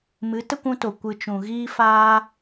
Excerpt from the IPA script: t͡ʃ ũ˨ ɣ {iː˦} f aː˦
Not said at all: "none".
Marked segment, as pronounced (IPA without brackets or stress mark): iː˦